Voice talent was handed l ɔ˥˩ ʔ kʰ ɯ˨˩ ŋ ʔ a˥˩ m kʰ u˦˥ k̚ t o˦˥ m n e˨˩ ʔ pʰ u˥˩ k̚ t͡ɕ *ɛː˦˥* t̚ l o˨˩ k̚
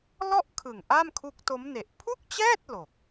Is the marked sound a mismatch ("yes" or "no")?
yes